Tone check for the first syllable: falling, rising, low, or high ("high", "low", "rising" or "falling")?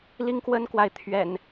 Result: high